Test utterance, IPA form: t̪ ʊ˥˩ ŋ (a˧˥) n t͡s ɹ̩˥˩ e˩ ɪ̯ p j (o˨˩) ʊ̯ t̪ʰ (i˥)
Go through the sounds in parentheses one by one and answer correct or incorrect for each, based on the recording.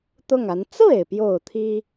correct, correct, correct

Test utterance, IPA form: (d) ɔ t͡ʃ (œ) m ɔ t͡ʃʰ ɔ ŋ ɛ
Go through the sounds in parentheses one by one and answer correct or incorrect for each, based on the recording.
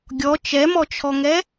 incorrect, incorrect

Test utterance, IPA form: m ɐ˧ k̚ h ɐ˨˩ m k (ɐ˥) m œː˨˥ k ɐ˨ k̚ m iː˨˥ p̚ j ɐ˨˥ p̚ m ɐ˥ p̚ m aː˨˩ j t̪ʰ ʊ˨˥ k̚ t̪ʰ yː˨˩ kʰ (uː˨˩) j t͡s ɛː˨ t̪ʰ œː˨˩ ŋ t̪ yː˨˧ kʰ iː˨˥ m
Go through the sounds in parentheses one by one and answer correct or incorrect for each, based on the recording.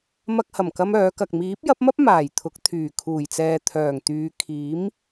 correct, correct

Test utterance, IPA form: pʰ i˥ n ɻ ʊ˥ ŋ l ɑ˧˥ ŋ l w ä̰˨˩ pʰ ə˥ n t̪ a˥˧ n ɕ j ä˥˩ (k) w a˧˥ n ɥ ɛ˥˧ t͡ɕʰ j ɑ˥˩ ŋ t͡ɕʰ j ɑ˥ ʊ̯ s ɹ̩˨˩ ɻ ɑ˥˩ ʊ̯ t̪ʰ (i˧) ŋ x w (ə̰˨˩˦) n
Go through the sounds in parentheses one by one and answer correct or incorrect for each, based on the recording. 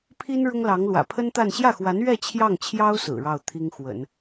incorrect, incorrect, correct

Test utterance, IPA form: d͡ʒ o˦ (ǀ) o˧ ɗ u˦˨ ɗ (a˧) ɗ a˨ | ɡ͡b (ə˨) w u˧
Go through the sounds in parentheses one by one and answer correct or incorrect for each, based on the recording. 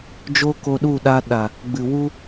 incorrect, correct, incorrect

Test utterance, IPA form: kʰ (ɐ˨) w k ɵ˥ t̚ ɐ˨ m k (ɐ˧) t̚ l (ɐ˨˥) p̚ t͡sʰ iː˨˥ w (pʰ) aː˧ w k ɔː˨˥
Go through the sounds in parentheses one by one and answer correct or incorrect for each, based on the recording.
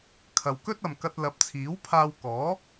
correct, correct, correct, correct

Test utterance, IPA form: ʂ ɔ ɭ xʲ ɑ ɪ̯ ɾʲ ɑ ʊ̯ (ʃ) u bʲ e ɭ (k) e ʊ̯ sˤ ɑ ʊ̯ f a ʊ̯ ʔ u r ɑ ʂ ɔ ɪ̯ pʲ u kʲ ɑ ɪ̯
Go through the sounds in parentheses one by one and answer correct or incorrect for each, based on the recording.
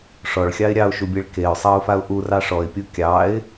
correct, correct

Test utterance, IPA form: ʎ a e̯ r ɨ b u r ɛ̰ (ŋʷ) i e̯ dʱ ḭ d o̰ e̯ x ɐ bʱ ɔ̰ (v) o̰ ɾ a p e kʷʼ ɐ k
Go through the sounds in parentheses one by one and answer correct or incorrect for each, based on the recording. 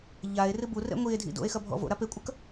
correct, correct

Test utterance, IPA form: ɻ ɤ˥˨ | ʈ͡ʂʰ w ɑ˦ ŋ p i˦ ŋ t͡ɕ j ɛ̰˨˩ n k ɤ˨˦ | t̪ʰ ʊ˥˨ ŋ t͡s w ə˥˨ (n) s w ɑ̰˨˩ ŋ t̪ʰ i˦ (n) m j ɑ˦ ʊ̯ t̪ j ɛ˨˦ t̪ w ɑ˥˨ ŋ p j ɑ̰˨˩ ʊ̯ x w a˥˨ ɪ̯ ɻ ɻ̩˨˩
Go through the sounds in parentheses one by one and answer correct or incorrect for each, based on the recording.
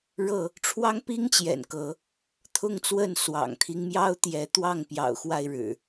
correct, incorrect

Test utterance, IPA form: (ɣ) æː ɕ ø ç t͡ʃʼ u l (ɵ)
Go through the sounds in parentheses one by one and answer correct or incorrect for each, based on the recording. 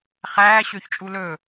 incorrect, correct

